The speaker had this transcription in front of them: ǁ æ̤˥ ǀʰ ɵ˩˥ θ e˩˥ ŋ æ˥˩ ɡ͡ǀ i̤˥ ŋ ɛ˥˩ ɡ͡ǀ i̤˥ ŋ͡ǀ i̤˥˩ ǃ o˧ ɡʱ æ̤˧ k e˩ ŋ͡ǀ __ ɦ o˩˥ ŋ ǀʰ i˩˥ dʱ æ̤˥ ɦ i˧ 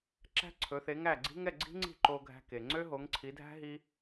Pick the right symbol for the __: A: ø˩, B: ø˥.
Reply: B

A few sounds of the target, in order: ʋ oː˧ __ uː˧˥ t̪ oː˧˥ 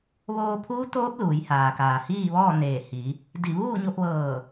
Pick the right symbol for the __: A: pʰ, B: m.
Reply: A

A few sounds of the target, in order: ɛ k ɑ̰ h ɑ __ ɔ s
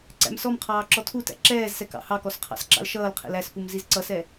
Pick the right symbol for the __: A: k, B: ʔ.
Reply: A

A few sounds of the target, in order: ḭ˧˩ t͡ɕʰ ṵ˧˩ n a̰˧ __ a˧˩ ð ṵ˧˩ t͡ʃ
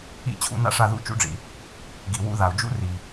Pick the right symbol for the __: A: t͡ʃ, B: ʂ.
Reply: B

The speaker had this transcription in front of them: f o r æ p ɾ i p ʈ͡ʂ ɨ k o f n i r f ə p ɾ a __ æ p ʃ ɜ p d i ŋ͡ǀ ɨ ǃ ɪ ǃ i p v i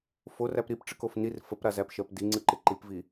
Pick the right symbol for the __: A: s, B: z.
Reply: B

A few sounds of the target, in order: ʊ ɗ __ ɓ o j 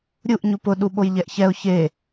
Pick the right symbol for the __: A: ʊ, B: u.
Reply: B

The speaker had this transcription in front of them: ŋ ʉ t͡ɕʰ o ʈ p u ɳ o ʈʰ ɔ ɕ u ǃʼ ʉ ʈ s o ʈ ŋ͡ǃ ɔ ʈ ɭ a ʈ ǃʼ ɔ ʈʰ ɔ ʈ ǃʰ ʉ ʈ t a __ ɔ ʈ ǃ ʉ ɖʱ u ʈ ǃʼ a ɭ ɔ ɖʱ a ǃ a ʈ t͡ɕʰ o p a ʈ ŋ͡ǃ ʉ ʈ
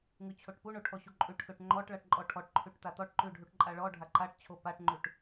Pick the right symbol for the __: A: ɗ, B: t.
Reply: B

